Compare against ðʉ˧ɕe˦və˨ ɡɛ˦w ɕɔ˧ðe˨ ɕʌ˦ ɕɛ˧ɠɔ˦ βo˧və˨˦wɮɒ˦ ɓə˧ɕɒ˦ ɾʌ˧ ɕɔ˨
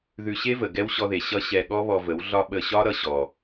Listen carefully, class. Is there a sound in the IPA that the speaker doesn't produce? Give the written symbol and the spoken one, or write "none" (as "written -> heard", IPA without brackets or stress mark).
o˧ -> ɔ˧